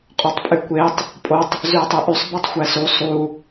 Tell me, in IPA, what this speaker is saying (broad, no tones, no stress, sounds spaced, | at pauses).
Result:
qʼ o tˤ pʼ y kʷ e tˤ | pʼ o tˤ | z y ɐ̯ tˤ ɯ ʔ y sˤ b i tˤ xʷ æ s u sˤ u